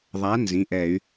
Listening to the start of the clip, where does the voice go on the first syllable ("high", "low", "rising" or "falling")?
rising